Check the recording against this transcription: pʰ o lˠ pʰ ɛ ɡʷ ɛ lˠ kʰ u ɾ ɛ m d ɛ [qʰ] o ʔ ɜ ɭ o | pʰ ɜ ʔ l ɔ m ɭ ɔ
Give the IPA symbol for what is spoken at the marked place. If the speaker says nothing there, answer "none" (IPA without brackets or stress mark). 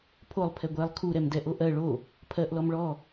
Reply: ʔ